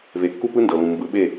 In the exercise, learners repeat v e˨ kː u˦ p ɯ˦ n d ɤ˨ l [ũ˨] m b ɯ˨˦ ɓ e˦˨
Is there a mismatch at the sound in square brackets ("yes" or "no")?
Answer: no